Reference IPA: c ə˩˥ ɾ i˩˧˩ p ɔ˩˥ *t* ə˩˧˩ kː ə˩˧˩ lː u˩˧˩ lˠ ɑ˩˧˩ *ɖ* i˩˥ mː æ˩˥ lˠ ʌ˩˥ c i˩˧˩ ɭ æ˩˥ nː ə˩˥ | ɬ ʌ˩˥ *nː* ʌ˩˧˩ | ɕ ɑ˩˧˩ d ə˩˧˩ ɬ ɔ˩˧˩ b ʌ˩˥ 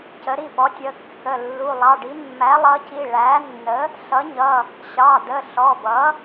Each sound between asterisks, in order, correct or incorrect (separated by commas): incorrect, correct, incorrect